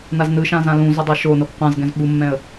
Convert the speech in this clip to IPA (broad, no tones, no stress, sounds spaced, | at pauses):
n a z n ɯ ʃ ã z ã l ũ z o dˤ a ʃ o n o ɡ qʷ ã z ɡ ɛ̃ z ɓ u mː ɛ̃ ə̯